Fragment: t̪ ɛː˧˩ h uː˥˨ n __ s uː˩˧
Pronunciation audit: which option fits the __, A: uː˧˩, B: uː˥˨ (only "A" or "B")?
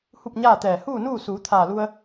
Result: B